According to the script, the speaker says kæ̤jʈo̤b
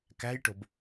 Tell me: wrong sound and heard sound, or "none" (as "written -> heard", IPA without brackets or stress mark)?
none